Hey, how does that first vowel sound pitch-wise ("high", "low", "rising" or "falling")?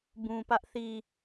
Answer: low